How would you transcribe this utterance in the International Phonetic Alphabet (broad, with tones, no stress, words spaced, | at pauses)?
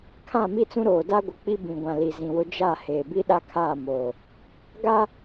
kʰã˦˨mi˦t͡sũ˦ɾoː˨ da˦ɡʷɪ˨k͡pi˦ bĩ˨ɡʷã˨ li˨zĩ˨wʊ˦ d͡ʒa˦˨ heː˨bi˦ɗa˦kʰaː˦˨ moː˨ | ɡa˦